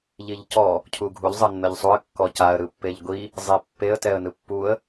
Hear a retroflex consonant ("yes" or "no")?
no